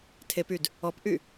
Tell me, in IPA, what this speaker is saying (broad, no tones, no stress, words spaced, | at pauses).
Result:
tʰepyd | ɔpʔy